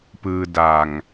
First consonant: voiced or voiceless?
voiceless